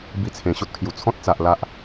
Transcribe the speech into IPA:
b i˧ t͡sʰ ẽ˨˩ ɕ o˦ t̚ kʰ j u˨˩ t͡sʰ ɔ̃˦ t̚ t͡s a˨ ʔ l a˦ ʔ

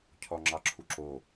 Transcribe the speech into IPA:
cʰ ɔ ŋ͡ǁ ɑ ǁʰ u ǁ o

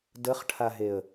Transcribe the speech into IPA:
d ə χ ʈʰ a ɦ e ə̯

